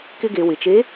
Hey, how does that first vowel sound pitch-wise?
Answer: high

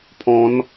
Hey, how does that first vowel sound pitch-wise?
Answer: rising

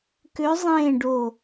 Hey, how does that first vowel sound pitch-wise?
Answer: rising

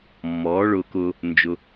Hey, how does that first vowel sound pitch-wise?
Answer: rising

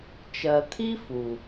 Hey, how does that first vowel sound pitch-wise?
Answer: low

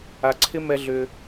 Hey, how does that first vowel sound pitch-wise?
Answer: low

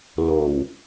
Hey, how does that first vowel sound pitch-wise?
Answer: low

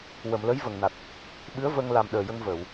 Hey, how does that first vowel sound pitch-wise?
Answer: low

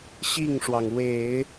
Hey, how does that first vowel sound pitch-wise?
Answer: falling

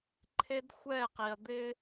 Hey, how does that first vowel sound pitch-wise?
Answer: high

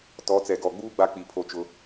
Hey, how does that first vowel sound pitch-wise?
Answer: rising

